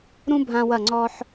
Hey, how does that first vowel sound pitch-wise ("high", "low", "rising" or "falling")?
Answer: high